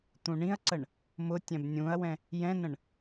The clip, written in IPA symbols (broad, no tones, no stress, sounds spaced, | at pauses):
t̪ ũ ɳ ĩ ɐ̯ ǀ ə ɳ | m ʊ tʲ ɛ̃ b nʲ ũ ɐ̯ w ɛ̃ | j ɛ̃ n ə̃ ɳ